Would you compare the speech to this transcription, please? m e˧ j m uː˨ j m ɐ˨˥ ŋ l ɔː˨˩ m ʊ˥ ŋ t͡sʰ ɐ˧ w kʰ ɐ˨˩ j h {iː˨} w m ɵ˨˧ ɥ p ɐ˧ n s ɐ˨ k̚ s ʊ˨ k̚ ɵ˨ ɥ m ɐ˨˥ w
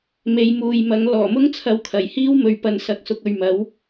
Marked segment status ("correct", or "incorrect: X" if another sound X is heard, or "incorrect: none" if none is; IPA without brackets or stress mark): incorrect: iː˥